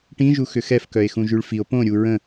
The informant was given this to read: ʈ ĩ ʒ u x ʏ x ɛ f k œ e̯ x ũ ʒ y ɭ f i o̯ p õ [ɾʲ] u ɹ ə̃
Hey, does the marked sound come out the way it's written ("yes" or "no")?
yes